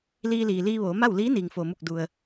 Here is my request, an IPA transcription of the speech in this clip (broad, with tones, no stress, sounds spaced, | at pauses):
l iː˧ l iː˩ l iː˧ ʋ oː˩˧ m a˥˨ w l iː˧˥ n iː˩ ŋ f o˩ m u˧˩ k̚ d u˩ ə̯